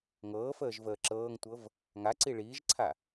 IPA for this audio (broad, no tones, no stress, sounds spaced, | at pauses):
ŋ ɤː f əː ʒ v əː ǁ ɤː ŋ tʷ ɤ v | ŋ a ǀ i ɭ iː ʒ ǀʰ a